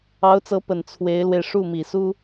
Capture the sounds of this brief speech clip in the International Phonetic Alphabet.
ɑ˧˥ ʊ̯ t͡s ɤ˧˥ p ə˨˩ n t͡sʰ w e˧˥ ɪ̯ l w e˧ ɪ̯ ʂ u˥˩ m i˨˩ s u˥

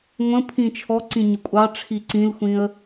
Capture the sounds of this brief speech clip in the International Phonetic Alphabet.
ŋʷ ə̃ pʰ ĩ t͡ʃʰ ɔ ǀ ĩ ɲ ʊ kʷʼ ɑ ʈ͡ʂʰ i ǀ ĩ l xʷ ĩ ə̯

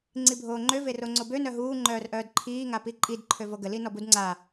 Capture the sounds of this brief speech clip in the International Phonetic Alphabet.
ŋ͡ǀ i bʱ oː ŋ͡ǃ ø v e r o ŋ͡ǀ o b ø n œ ɦ uː ŋ͡ǃ œː r ʔ œː d ǃʰ iː ŋ a p i ǃʼ i d ǃʰ ø v o ɡ ə l i n ɔ b u d ŋ͡ǀ a

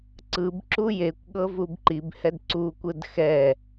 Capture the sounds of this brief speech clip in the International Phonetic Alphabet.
ǀ ɯ b ǁ u j e kʷ ɠ ɤ v u b ǃ i b h ɛ d ǀ u kʷ ɯ d x ɛ

